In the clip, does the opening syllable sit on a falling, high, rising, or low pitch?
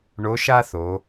rising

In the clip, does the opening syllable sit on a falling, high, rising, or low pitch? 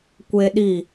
high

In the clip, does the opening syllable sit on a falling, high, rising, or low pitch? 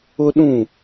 high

